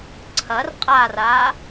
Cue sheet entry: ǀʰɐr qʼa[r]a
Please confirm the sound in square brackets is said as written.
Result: yes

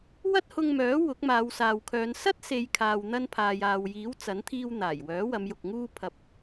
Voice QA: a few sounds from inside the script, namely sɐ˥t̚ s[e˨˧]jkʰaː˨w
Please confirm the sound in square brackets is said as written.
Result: yes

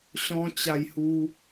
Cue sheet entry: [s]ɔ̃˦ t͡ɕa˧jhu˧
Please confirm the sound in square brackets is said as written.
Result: no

